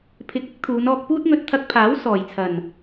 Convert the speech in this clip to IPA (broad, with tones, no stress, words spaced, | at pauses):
pʰɪ˨˥k̚ɪ˥k̚ t̪ʰuː˨˧nɔː˧k̚puː˥t̚ŋɵ˧t̚ t̪ʰɐ˧k̚pʰaː˨˥w sɔː˨˩jt͡sʰɐ˨˩n